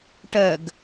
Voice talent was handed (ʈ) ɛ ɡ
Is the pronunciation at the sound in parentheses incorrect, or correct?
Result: correct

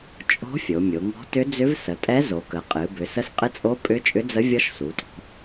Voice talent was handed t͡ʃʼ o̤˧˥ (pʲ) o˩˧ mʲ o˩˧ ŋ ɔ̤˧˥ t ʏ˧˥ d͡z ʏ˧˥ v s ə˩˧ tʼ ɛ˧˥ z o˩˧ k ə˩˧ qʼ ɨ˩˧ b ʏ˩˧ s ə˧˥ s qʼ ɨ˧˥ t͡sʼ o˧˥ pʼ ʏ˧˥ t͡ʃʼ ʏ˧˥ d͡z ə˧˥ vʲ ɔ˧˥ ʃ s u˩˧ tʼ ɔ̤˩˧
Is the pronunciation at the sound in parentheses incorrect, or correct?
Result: incorrect: fʲ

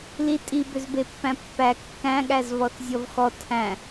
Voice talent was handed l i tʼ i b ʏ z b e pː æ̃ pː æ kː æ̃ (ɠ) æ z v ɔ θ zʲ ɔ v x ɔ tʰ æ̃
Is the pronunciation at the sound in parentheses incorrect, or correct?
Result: correct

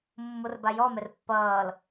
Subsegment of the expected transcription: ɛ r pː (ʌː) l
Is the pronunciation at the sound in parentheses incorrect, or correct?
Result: correct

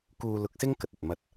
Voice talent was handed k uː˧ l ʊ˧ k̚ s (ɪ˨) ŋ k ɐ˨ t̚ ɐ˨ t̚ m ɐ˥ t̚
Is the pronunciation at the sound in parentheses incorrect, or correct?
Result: incorrect: ɪ˥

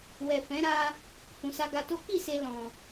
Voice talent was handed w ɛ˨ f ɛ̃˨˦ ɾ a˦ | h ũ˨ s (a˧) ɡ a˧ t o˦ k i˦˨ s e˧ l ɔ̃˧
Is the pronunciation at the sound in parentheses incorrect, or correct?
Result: correct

